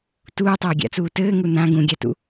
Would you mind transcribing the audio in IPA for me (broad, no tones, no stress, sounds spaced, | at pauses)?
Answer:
t uː tˤ ɛː ɡʲ a̰ t͡s uː t ɘː ŋ u n ã ɡ ũ ɡʲ a t ṵ